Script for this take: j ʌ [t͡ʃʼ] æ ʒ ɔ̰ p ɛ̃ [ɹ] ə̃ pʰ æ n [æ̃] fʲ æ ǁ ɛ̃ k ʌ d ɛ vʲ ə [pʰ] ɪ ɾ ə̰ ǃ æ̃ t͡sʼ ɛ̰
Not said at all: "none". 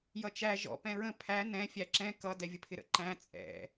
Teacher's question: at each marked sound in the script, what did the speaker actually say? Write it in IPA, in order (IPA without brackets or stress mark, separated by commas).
t͡ʃ, ɹ, ɛ̃, pʰ